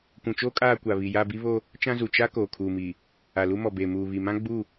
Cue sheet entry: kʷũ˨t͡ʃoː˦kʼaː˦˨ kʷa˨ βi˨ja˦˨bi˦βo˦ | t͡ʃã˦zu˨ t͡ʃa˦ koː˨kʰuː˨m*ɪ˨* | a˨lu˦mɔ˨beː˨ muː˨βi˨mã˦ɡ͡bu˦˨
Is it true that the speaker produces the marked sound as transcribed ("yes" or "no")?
no